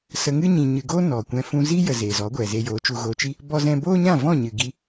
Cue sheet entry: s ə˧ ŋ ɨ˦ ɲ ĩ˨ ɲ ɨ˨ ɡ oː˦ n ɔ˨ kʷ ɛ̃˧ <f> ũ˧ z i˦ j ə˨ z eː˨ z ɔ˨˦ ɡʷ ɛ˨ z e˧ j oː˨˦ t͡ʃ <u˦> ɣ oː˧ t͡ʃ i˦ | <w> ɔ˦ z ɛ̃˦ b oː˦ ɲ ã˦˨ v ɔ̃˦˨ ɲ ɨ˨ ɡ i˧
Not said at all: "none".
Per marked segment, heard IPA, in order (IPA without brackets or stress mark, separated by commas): f, u˧, b